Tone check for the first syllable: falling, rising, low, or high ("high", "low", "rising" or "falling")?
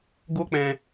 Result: high